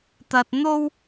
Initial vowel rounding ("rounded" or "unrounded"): unrounded